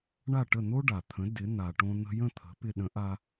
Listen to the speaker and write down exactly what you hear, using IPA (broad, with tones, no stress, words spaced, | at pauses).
ɳa˥˩ʈə˥˩n̪o˥ ɖa˩t̪ʰə̃˩˥ dɪ˩˥n̪a˩ʈõ˧ n̪ə̤˧jə̃˥˩ t̪ʰə̤˩˥pɪ˧ ɗə̃˩˥ʔa˧